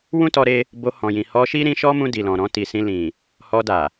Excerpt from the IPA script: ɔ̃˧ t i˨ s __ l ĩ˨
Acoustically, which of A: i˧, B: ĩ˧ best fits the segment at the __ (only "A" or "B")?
B